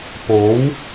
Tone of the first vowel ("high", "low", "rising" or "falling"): rising